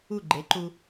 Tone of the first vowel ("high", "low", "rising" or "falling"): falling